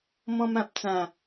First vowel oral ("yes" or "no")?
no